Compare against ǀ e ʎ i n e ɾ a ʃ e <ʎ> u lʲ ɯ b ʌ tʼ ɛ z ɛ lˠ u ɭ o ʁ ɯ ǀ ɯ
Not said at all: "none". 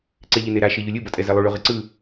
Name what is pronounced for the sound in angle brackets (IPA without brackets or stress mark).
ʎ